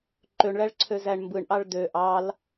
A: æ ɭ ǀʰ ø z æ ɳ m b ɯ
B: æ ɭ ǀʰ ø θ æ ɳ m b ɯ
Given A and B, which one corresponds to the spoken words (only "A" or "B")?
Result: A